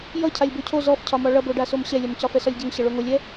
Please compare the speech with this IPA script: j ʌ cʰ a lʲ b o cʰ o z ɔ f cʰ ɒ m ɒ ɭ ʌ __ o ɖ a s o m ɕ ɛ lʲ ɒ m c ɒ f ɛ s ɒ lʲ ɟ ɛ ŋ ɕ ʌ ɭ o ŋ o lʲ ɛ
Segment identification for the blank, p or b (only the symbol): b